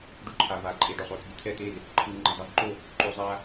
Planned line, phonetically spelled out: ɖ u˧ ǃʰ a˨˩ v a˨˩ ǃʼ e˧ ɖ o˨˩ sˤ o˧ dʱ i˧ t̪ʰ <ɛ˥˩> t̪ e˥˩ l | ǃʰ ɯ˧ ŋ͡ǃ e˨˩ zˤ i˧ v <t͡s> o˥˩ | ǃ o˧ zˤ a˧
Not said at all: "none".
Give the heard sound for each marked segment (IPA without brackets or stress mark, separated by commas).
ɛ˥˩, ǃ